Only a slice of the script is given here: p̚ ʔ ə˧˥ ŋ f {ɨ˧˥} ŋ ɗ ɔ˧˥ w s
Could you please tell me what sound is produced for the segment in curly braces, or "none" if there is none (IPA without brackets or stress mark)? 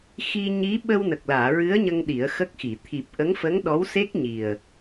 ə˧˥